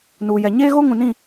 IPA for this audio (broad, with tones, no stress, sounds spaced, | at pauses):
n uː˨ j ɛ˨ ɲ eː˦ ɣ o˦ ŋ ũ˨ n ĩ˦˨